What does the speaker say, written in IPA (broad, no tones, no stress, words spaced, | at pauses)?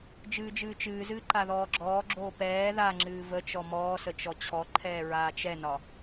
d͡ʒɨːd͡ʒɨːt͡ʃɨːzɨː ǃaðɔːɡ͡ǁɔːɡ͡ǁoː pɛː ðaŋ͡ǁɨː vət͡ʃɔ mɔːsə t͡ʃɔt͡ɕʰɔǃʰɛː ɹaːt͡ʃɛnɒ